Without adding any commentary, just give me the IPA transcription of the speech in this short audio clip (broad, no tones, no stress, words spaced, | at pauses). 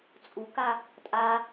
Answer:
t͡sʼuka | tʼa